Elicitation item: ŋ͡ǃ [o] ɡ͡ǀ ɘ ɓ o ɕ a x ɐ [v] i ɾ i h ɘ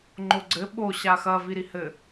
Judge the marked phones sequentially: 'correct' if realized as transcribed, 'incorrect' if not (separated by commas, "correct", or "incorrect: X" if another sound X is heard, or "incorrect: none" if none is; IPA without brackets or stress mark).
correct, correct